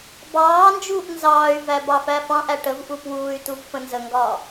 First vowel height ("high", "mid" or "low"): low